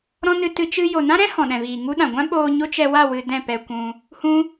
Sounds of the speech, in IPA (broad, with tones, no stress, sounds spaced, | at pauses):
ɾ ɔ̃˦ n ɨ˧ t ɨ˧ t͡ʃ ɨ˧ j o˨ n ã˦ ɾ ɛ̃˦ h ɔ̃˨ ɗ ɛ̃˨ v iː˨ ŋ u˦ ɗ ã˨ ɡʷ ã˦ ɓ oː˧ ɲ o˦ t͡ʃ ɛ˧ w a˦˨ w ɨ˧ d ɛ̃˦˨ p ɛ˧ kʷ ũ˧ | h ũ˦